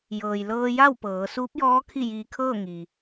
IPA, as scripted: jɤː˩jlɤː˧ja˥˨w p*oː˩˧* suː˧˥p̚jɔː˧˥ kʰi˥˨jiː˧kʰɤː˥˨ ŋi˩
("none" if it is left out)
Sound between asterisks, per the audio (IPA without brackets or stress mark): ɤː˩˧